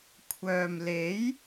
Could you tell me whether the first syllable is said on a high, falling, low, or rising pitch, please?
low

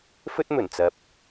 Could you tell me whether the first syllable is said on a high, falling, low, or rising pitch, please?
high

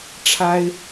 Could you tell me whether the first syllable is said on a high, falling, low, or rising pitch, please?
high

